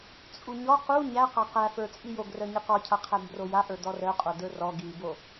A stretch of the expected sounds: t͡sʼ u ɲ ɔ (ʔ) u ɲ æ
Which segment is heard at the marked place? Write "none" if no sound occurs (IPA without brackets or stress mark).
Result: q